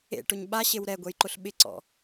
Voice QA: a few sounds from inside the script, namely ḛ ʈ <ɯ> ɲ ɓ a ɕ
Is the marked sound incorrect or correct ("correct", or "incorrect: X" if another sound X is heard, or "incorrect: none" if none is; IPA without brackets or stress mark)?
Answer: incorrect: ʊ